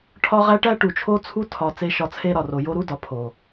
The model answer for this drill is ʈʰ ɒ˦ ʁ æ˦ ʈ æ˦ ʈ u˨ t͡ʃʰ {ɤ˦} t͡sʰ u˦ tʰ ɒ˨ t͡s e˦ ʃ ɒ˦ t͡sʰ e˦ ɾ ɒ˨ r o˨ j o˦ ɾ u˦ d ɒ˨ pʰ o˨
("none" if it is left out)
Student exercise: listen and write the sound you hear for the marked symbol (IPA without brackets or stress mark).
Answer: o˦